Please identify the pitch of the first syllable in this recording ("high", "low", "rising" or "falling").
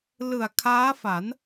low